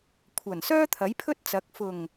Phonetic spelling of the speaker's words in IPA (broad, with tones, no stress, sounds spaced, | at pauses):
kʷʰ ɐ˨˩ n s œː˥ t̪ʰ ɐ˨˥ j pʰ ɵ˥ t̚ t͡s ɐ˨˥ k̚ f ʊ˨˩ ŋ